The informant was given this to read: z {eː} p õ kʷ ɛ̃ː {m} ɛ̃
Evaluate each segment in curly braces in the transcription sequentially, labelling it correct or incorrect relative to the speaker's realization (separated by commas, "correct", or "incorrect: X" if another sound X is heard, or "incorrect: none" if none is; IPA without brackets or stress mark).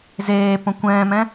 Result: correct, correct